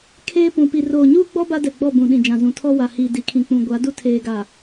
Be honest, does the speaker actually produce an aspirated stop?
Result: yes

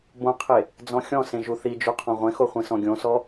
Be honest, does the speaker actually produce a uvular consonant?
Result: yes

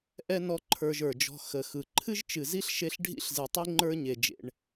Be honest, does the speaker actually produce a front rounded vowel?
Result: no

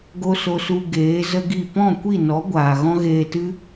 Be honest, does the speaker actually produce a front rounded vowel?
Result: no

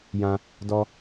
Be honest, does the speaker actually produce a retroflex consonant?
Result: no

